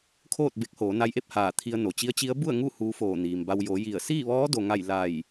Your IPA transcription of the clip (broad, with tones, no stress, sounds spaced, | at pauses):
kʰ oː˥˨ t̚ b e˧˥ k̚ h oː˩˧ n a˧ j ʔ e˥˨ p̚ h aː˧˩ t̪ʰ i˧ ə̯ n o˩ t͡ɕ i˧˥ ə̯ t͡ɕ i˧˥ ə̯ b u˥˨ ə̯ ŋ u˥˨ h uː˧˥ f oː˧˩ n iː˩ m b a˧ w j o˩˧ j i˧˩ ə̯ s iː˥˨ ʋ ɔː˧˥ d o˩ ŋ a˧˩ j l a˧˩ j